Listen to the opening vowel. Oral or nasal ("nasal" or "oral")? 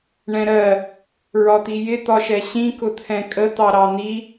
nasal